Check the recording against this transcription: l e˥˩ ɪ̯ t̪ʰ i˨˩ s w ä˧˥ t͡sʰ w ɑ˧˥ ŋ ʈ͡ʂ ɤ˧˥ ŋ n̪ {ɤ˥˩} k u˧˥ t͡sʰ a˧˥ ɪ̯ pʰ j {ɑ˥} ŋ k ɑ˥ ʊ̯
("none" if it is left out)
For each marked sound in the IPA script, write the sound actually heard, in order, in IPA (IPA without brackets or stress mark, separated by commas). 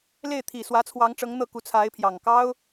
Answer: ɤ˥˩, ɑ˨˩